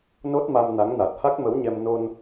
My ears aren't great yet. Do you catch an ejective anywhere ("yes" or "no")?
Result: no